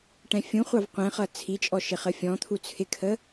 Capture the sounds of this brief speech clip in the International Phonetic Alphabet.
ʈɛ̃fʲũχʷɑv qʷɛ̃χʌ t͡sʰit͡ʃʼɔ ʃɪχəfʲɔ̃t̪ʰu t͡sʰɪkʰə

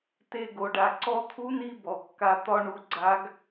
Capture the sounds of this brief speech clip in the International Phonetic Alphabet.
te˧ɡo˩˧ɖa˩˧ ǀɔ˧t̪ʰu˧˥ni˧ bɔ˩kːa˧t̪ɒ˥ɳu˧ ɡ͡ǀa˧˥ɡ

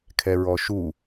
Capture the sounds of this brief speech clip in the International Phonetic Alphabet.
kʰɛɹɔʃu

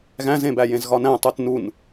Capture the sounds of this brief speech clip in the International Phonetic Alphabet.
ɣæ̃zẽbæjẽz ɣɒnæ̃tˤut nun

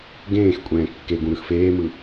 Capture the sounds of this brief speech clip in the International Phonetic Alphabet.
ɡẽːx kʷʼɛ̃ːkːeɡũ ɾɯxfeːmɯ

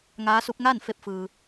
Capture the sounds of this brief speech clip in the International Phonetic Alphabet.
ŋaː˧˥su˧˥p̚ ŋaː˥˨n fe˧p̚ fɯː˧

